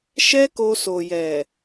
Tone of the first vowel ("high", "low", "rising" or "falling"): high